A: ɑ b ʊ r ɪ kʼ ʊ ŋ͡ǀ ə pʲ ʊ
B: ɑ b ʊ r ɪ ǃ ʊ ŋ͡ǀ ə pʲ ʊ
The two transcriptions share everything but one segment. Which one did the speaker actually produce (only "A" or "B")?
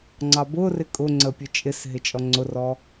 A